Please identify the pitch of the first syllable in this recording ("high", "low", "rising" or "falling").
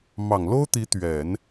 low